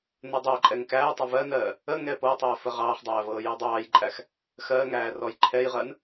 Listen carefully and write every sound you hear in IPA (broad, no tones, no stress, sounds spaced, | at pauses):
n ɜ dˤ æ ǃʼ ɛ ŋ k æː tˤ ə v ɜ n ɜː | ə ŋ ɛ p ɤ tˤ ɜ f ə ʁ ɑː χ dˤ æː v ɤː j ɜ dˤ ɑː j ǃʼ æ x | x ɜː ŋ æː r ɔ j ǃʰ ɛ j ʁ ɜ n